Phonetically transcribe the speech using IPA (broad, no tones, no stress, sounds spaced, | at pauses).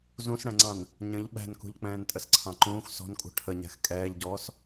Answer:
z ũ s ɽ ɛ̃ ŋ͡ǀ ɑ̃ n | ɲ ə̃ ʎ ɓ æ̤ n k ṳ ʎ k͡p ɛ̃ː n tʼ ə s ǀʰ ɑ̃ ǃ ũː x s ɔ̤ n kʼ ṳ ʈʰ ə ɲ æ̤ x kʼ ɛː ʎ ɟ ɔː s